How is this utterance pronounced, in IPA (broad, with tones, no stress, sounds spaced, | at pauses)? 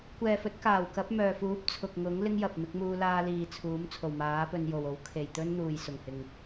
kʷ ɛː˨ f ɵ˨˥ t̚ k aː˨˩ w k ɐ˨˥ p̚ m œː˨ f uː˨˥ p̚ t͡sʰ ʊ˨ k̚ ŋ ʊ˨˥ ŋ l ɪ˥ ŋ j ɐ˨ p̚ m ɪ˨˥ k̚ m uː˧ l aː˧ l iː˨ t͡sʰ uː˨˥ m t͡sʰ o˨˩ w m aː˨˥ p ɵ˧ n j o˨ w o˨˥ w kʰ e˨ j t̪ ɵ˥ n n̪ uː˨ j s ʊ˨ ŋ h ɪ˨ ŋ